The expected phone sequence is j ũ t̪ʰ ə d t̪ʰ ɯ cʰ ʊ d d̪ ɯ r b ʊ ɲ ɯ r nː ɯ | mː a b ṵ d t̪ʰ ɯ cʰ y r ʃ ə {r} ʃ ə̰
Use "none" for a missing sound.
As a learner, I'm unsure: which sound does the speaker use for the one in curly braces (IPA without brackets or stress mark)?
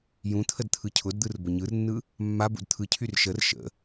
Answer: r